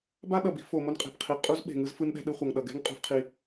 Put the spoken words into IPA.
b a˥ ɗ ʌ˩ b i̤˧ f o˩ m o˧ n qʼ e̤˩ b qʰ i˩ qʼ u˧ z ɓ e̤˩ ŋ ɯ˧ z f ɯ˧ n ɗ ɛ̤˧ ɗ ɯ˧ χʷ ʌ˩ ŋ ɗ ʌ˩ ɡ ɛ̤˥ ŋ qʼ ṳ˧ f qʰ i˧

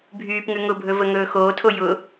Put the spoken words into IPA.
bʱ yː p ŋ ʉ ŋ ʊ bʱ ɵ v ə ŋ ɵː x oː tʰ o j ʊ

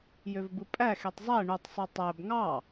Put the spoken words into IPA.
j ø v b ɯ pʼ æ x e tˤ zˤ æ ɳ u tˤ sˤ ø tˤ æ b ŋ ɑ

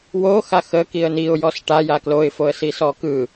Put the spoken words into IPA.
w o x a x ə k i ə̯ n i ʊ̯ j ɔ s ʈ a j a k l o ɪ̯ f o ə̯ s i s ɔ k ɯ

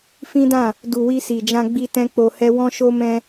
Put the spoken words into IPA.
f ĩ˦ d ã˦˨ | d u˨ w i˧ s i˨ d͡ʒ ã˧ ɡ͡b i˧ t ɛ̃˦ k͡p o˧ h ɛ˦ w ɔ̃˦ ʃ o˦ m ɛ̃˧

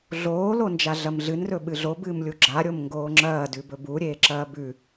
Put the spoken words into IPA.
ɮ oː l o n d͡ʒ a ɮ ɐ m ɮ ɨ n r ɵ ɓ ɨ ɮ o b ɨː m lʲ u ɡ͡ǁ a ɾʲ o m ŋ ɡ oː ŋ͡ǁ ɐː d ʉ b ɵ b u ɾʲ eː ǁ ɐː b ʉ

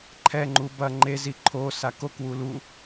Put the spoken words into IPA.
ǃʰ ɛ ŋ͡ǃ u b ɐ ŋ͡ǃ e z i ǃʰ o s a k o k w u l u

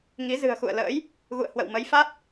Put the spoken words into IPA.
ŋ i˨˦ z ɨ̤˨˩ ə̯ x ṵ˧˨ ə̯ l ə̰ː˧˥ j | ɣ ṵ˧˨ ə̯ h w ə̰˧˨ w m ə˨˦ j f a˦˥ t̚

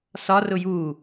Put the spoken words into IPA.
s ɒ r ʊ j u

